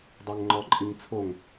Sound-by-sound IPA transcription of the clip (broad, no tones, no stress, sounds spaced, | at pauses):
dˤ ɛ ŋ ŋ͡ǃ ɔ ǃʼ i ŋ t͡sʰ o ŋ